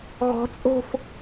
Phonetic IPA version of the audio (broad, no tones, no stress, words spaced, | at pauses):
ɣɔ̤t͡sʼo̤f